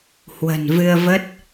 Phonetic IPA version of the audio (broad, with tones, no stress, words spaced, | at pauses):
hwə̤˨˩nvɨ˧ə̯və˦˥t̚